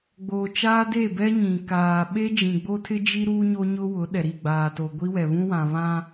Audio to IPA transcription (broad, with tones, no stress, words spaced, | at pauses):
ɡ͡boː˨t͡ʃaː˦de˦˨bɛ˦ ɲĩ˨ kaː˨ ɓe˦d͡ʒĩ˨ɡ͡bo˦ tʰɪ˦ d͡ʒi˦ ɾuː˦ɲo˦ɲʊ˦ wʊ˨˦ɗɛ˨ ɾi˦˨ɡ͡baː˨to˨ ɡʷi˦wɛ˨βũ˦wã˨ βã˦